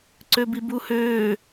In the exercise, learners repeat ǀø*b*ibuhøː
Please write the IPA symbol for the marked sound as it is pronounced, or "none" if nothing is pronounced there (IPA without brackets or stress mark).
b